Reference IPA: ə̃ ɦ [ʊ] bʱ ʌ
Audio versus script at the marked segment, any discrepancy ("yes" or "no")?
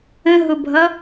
no